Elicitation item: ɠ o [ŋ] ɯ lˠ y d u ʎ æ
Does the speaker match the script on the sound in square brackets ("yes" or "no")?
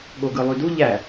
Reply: no